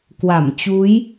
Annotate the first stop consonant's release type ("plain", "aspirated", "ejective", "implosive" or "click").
plain